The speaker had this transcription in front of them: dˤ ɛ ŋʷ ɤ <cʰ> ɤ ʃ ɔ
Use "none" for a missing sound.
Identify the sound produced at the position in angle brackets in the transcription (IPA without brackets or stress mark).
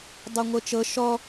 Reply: t͡ʃ